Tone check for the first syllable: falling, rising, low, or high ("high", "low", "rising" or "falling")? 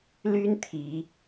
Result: high